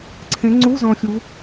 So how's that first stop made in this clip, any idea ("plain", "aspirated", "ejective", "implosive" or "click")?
click